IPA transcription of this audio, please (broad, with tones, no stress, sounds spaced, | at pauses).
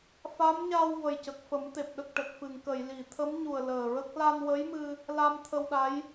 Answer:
f a˧˥ m ɲ a˧ w v ə˨˩ j c ə˨˩ k̚ f ə˨˩˦ m t̪ e˨˩ p̚ ɗ ə˨˩ k̚ ʈ ə˨˩ k̚ f ɨ˨˩˨ ŋ k ə˨˩˨ j l i˨˩˨ t̪ʰ ə˧˥ m ɲ u˨˩ ə̯ l əː˨˩ ɹ ə˦˥ k̚ l a˧ n w ə˧˥ j m ɨ˧ | l a˧ m t̪ʰ ə˧ w ɗ a˧˥ j